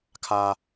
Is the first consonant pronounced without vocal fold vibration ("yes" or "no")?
yes